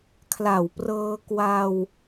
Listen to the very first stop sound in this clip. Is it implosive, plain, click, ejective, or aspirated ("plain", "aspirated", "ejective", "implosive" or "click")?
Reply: aspirated